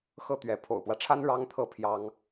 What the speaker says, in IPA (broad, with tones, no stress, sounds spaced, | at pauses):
x ɤ˥ t̪ ɥ ɛ˧˥ pʰ o̰˨˩ ʊ̯ p w ä˦ ʈ͡ʂʰ a˥ n ɻ ɑ˥ ŋ t̪ʰ ɤ˥˩ pʰ j ɑ˥ ŋ